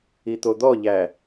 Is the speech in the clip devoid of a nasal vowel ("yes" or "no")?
yes